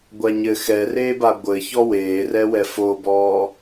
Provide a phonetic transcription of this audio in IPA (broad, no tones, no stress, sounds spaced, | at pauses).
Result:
ɡʷ a ɲ ɘ x ɛ r eː b a ɡʷ ɘ ç ɔ w eː r ɛ w ɛ f o b ɔː